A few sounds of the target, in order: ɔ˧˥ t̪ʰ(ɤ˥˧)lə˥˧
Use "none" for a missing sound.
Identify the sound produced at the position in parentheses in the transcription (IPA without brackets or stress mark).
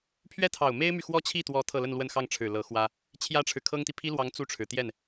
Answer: ɤ˥˧